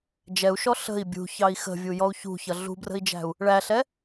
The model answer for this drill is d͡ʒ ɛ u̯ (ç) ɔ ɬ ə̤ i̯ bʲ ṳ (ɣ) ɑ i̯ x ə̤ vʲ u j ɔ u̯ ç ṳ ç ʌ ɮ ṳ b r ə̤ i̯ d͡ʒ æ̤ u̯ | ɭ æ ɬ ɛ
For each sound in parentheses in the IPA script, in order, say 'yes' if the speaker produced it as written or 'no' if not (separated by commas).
no, no